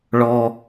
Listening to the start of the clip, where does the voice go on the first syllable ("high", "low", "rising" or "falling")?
low